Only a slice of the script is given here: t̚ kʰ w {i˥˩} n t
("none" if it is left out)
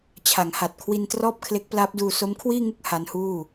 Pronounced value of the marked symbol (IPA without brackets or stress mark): i˧